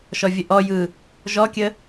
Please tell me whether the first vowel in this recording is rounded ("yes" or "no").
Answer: yes